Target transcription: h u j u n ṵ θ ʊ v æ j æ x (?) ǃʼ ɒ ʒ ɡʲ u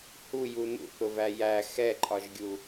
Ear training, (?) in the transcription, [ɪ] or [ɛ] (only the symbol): ɛ